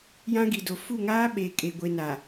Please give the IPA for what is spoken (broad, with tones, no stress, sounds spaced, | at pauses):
j ã˦ ɡ i˨ d o˨ f u˦˨ ŋ aː˦ ɓ e˨ kʼ e˨ ɡʷ e˨ n a˨